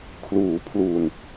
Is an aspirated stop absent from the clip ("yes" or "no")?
no